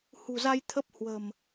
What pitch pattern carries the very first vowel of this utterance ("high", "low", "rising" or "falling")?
low